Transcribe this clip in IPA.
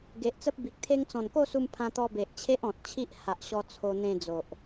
ɡ e˨ ʔ t͡s ə˦ p̚ b i˨ k̚ t̪ʰ e˦ ŋ t͡s ɔ̃˨˩ n k o˥˧ s u˧ m pʰ ã˧ t̪ ɔ˧ b e˨ ʔ t͡ɕʰ e˦ ʔ ɔ̃˨ t̚ t͡ɕʰ i˦ ʔ h a˨ ʔ ɕ ɔ˧ t͡sʰ o˧ n̪ ẽ˧ d͡z o˨ ʔ

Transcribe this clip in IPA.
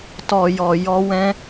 t ɔ˨ j ɔ˨ j ɔ˧ w ɛ̃˦

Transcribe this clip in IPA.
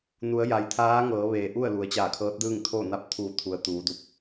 n u˩˧ ə̯ j a˩ j t̪ʰ aː˧˥ ŋ ɤː˩˧ ʋ eː˩ ʔ u˥˨ ə̯ l u˩˧ ə̯ t͡ɕ aː˧˩ kʰ ɤː˧˥ t̚ d ɯː˥˨ ŋ t̪ʰ o˥˨ n a˧˥ p̚ t̪ʰ u˧˩ t̪ʰ u˩ ə̯ t̪ uː˩˧ d u˧ p̚

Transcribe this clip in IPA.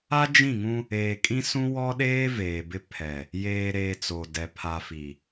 a˦ d͡ʒ ĩ˦˨ ŋ ũ˦ | eː˨ kʼ ĩ˦ s ũ˦ w ɔ˦ ɗ eː˦ v eː˨ b ɪ˦ pʰ ɛ˨ | j eː˨ ɾ eː˨ t͡s o˨ d ɛ˨ pʰ a˨ f i˨

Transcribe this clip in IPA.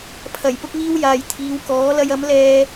pʰ ɐ˨˩ j p ʊ˧ k̚ ŋ iː˧ w j aː˨ j t̪ʰ iː˨˧ w k ɔː˨˥ l ɐ˧ j ɐ˨˥ m l ɛː˧

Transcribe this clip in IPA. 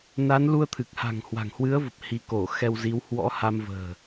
n a˨˦ n l u˧ ə̯ t̪ʰ ɨ˨˩ k̚ h a̤˨˩ ŋ h w a̤˨˩ ŋ h w ɨ˨˦ ə̯ v ə˨˩ p̚ h i˧ k o˧˩ x ɛ˧ w z i˨˦ w h w ɔ̰˧˥ h a˧ m v ə̤ː˨˩

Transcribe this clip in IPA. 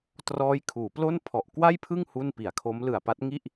t r ɔː˦˥ j kʰ uː˩˦ p l o˥˩ n pʰ ɔ˨˩ ʔ k w a˥˩ j pʰ ɯ˥˩ ŋ h u˥˩ n p i˩˦ a̯ kʰ o˦˥ m l ɯ˨˩ a̯ p a˦˥ t̚ ŋ i˥˩ ʔ

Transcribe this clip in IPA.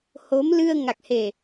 h o˨˦ m l ɨ˧ ə̯ ŋ a˨˩ k̚ h e˨˩

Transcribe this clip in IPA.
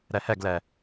ɾ ɛ h ɛ ɡ l ɛ

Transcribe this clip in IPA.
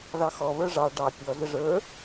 ð ɑ x ɔ β ə˞ ʐ ɑ ɖ ɑ pʲ ɔ z ə ʐ ə˞

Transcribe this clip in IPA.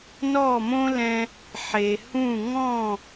n ɔ˥˩ m õ˥ l ɛ̃˧ | ħ e˩ h ũ˥˩ ŋ ɔ̃˥˩

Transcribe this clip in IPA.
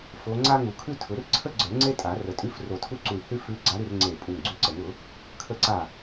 f o˧˥ ŋ͡ǀ a˥ ŋ u˨˩˦ kʰ ʉ˥ tʰ ʊ˨˩˦ r ǀʰ ə˥ ɡ͡ǀ ə˞˨˩˦ ŋ͡ǀ e˥ tʼ a˨˩˦ r ə˨˩˦ tʼ ʉ˧˥ f r o˧˩ tʰ u˥ ǀ u˧˩ i̯ h ʉ˥ f ʉ˧˥ ɡ͡ǀ a˧˥ ɾ ʉ˥˨ r ŋ͡ǀ e˧˩ pʼ u˧˩ ŋ ɡ͡ǀ ʉ˧˥ ǀ ə˨˩˦ ŋ ʊ˨˩˦ | kʰ ə˧˩ ǀ a˧˩

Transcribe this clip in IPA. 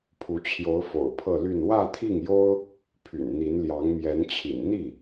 pʰ u˧˥ t͡ɕʰ j o˧˥ ʊ̯ f o̰˨˩ ʊ̯ pʰ ɤ˥˧ l y˥˧ n w ä˥˧ t̪ʰ i˥˩ ŋ j o˥ ʊ̯ | pʰ y̰˨˩ n n̪ i˧˥ n l j ɑ˧˥ ŋ m j ɛ˧˥ n t͡ɕʰ ḭ˨˩ n n̪ i˥˩

